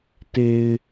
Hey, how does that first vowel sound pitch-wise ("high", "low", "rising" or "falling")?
low